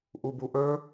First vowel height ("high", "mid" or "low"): high